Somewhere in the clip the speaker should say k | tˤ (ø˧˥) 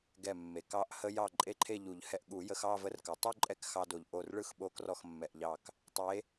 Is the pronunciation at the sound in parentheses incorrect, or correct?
incorrect